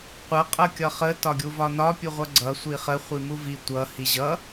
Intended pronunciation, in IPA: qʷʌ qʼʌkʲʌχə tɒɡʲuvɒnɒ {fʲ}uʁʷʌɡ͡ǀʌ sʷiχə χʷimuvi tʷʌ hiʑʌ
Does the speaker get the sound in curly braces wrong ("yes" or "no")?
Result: yes